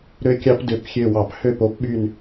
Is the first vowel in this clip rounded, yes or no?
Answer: yes